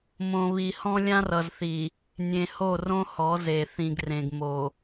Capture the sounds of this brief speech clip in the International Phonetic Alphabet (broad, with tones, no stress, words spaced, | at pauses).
mõ˨βi˨hɔ̃˦lʲã˦r ʌ˨zθi˨ | nʲẽ˨ho˦˨rõ˦ hɔ˨˦ze˨ θĩ˨ɡrẽ˨ɡmo˨